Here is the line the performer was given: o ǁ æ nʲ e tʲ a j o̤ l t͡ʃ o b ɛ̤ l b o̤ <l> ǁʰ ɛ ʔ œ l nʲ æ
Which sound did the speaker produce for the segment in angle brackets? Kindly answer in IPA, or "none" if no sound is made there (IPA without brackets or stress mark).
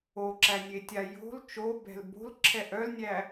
l